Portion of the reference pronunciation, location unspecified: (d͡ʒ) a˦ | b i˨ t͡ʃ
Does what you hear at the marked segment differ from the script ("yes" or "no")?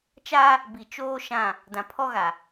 yes